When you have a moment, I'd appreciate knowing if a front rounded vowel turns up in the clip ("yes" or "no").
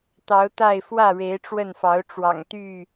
yes